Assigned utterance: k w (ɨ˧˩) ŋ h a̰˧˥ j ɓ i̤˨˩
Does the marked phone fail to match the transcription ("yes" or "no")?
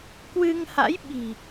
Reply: yes